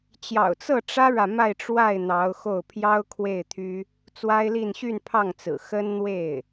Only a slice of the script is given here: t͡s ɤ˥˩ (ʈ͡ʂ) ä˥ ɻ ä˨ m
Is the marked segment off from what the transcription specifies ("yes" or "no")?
no